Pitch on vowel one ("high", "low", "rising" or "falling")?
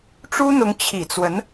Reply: high